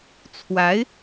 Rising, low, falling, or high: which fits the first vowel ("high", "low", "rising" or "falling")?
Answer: rising